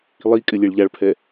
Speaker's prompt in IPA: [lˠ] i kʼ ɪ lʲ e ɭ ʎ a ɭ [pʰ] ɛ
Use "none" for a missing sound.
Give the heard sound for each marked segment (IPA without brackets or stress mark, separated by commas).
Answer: lˠ, pʰ